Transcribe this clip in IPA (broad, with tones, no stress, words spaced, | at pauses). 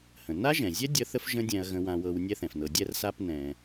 hə̃˩ na˦ʒɛ̃˩zʲɛ˦ dʲə˦θə˥fʒə̃˦ dʲɛ̃˨ɐ̯ɣə̃˨wã˨wɤ˨w nʲɛ˥θɛ̃˩fnɤ˨ dʲɛ˥rsa˥p nɛ̃˨